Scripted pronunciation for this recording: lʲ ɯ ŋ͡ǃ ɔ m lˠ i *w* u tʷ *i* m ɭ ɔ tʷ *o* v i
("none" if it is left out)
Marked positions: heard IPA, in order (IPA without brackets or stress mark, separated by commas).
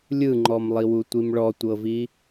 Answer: w, i, ɤ